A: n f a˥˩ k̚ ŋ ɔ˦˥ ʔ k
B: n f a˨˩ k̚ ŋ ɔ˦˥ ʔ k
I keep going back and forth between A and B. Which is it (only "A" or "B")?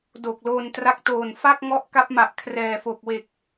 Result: A